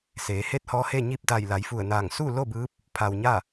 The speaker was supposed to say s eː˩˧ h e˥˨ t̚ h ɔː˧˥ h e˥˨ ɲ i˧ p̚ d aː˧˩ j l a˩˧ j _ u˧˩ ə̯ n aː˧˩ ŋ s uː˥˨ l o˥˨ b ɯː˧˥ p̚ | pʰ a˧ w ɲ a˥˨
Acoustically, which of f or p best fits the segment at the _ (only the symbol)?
f